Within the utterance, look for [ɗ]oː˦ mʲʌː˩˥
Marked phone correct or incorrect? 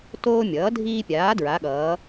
incorrect